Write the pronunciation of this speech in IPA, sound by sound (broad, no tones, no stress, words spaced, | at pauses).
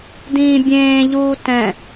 dĩːbʲẽːʎuː tɛ̃